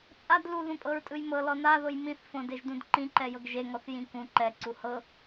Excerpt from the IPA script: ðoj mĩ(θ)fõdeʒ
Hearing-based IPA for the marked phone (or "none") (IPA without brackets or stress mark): θ